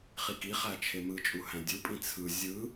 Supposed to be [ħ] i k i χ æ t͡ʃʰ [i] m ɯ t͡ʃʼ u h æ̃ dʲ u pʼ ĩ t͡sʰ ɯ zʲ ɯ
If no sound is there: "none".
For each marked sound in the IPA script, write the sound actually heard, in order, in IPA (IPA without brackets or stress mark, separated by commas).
χ, e